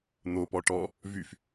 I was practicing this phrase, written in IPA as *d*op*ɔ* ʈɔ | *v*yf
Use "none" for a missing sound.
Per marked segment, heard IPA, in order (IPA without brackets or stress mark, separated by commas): n̪, ɔ, v